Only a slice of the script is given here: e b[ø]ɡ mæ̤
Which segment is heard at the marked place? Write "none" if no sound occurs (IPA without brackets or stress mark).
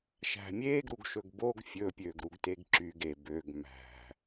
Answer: ø